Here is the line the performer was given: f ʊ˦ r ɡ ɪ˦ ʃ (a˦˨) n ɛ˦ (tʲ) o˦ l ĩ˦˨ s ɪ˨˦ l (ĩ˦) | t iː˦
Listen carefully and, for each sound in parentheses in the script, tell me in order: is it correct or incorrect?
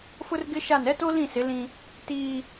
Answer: correct, incorrect, correct

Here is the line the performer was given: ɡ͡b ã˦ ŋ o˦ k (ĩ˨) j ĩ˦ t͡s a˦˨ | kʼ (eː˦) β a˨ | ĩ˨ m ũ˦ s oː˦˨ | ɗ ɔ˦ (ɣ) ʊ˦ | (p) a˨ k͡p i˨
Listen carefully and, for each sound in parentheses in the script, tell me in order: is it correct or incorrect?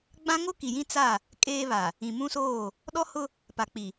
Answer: incorrect, correct, incorrect, correct

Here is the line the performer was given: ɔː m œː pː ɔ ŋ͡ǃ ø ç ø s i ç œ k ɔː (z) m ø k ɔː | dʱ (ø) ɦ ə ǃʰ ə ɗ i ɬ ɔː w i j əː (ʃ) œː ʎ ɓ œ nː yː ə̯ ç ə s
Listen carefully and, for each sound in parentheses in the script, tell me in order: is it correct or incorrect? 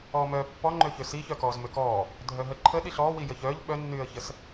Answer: correct, incorrect, incorrect

